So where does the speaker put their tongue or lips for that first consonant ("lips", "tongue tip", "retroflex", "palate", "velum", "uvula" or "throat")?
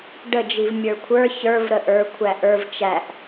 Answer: retroflex